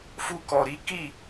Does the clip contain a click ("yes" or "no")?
no